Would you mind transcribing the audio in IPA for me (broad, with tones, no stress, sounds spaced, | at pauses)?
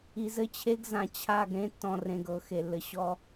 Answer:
i˨ z ɘ˦ t͡ɕʰ e˦ ɡ z ã˨ t͡ɕʰ a˦˨ ɡ ɾ ẽ˦ tː ɔ̃˨ r ẽ˨ ɡ ɤ˦˨ x e˨ lː ɘ˨ ɕ ɔ˦